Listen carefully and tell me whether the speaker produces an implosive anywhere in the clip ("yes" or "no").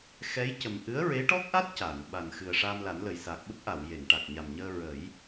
yes